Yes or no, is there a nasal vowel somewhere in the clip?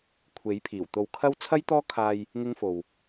no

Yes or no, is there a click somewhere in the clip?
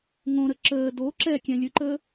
yes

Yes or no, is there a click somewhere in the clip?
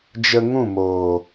no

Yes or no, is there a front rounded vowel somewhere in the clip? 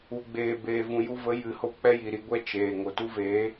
no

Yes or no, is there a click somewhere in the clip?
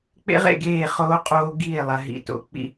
no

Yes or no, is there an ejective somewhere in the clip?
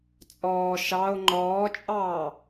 yes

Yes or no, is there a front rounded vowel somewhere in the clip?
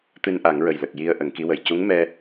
no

